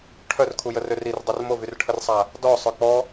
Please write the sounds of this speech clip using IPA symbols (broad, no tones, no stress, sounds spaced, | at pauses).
ʈʰ œ r kʰ u j ə r ø r i r dˤ o r m o v y r ʈʰ ə r sˤ a | d ɔ sˤ œ k͡p ɔ